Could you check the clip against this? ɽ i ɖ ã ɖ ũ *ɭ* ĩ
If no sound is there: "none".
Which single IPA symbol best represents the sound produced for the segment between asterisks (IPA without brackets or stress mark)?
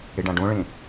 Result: ɭ